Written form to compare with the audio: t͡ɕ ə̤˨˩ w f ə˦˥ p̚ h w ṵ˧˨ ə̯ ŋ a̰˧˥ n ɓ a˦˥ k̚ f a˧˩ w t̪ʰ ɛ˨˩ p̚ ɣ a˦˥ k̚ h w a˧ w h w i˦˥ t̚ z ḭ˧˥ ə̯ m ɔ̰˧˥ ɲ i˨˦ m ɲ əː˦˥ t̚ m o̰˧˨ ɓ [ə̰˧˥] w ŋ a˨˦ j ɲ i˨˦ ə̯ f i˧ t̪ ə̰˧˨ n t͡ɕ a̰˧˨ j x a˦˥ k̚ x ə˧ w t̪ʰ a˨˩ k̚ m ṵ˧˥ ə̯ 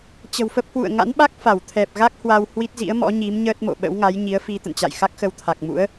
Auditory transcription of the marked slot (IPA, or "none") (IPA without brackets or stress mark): ə̰˧˥